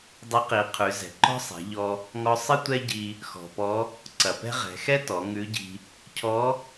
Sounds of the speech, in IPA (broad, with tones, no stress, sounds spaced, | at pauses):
dˤ ɪ˧˥ q i˩˧ qʰ ʉ˩˧ z ɛ̤˩ ǃ ɔ̤˥ sˤ ɛ̤˩˧ ʎ ɔ˧ | ŋ ɔ˧ sˤ ɪ˥ tʷ ɛ˥ ɟ i˧ | x ɔ̤˩ p ɔ˧˥ | ǀ ɐ˩ p ɛ̤˥ ʁ ɛ̤˩˧ x ɛ˥ t ɔ˩˧ ŋ ʉ˧˥ ɟ i̤˧ | cʰ ɔ˧˥